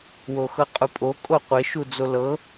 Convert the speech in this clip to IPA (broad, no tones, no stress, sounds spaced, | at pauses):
w o x ɤ qʼ u pʼ o kʼ o qʷ e ʃ u d͡z o l ɤ